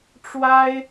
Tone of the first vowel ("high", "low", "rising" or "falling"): high